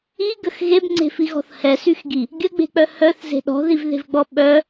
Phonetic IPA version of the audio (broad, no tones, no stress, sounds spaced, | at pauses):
i ɡ ə x ɣ e b ŋ͡ǀ e̤ f i ɣ ɔ̤ θ h ɛ s y x ɡ i | ɡʲ ə ɡ͡b e̤ k͡p œ h œ θ z e̤ ɗ ɔ̤ ð i v ð e̤ v ɡ͡b ɔ ɓ œ